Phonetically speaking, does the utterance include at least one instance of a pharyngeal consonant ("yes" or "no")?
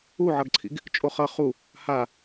yes